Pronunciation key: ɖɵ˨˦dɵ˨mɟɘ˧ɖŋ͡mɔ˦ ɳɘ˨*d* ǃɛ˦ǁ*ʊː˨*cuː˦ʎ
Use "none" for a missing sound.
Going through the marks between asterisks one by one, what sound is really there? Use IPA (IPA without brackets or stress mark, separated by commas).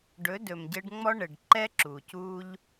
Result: ɖ, uː˨